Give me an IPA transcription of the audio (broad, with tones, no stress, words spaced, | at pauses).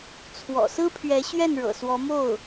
t͡sʰwɔ̰˨˩sɹ̩˥pʰɥɛ˧˥ ɕɥɛ˥˩nɻɤ̰˨˩ swɔ˧˥mo˥˩ʊ̯